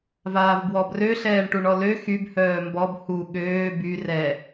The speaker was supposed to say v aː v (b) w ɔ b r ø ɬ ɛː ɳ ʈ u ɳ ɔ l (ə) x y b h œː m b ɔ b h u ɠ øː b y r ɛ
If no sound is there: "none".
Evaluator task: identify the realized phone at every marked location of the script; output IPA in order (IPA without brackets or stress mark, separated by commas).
b, ø